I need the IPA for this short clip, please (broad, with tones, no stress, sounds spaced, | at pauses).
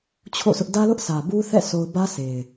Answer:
t͡ɕʰ o̰˦˨ sʰ ʊ˦ ʔ d ä˦ l ʊ˦ ʔ sʰ ä˨ b u˦ θ ɛ̰˦˨ s o˦ ʊ̯ b ä˦ s e˨ ɪ̯